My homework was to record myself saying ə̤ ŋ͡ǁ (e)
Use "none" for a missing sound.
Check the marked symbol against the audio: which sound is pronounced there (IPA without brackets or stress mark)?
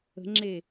e